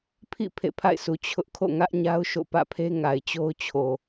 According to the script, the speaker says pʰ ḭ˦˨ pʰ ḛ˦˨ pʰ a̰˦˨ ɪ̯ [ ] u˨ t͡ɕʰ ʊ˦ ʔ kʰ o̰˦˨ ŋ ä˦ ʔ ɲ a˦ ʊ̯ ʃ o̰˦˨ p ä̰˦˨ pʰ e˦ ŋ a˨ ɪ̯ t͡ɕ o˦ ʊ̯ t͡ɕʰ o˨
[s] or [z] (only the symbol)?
s